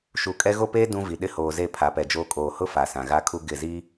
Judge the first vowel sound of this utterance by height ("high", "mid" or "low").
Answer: high